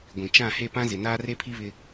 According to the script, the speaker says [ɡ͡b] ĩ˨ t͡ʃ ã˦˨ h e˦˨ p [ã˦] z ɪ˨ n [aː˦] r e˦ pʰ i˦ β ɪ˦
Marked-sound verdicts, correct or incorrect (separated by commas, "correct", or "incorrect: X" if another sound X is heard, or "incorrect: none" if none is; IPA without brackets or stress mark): incorrect: ɡʷ, correct, correct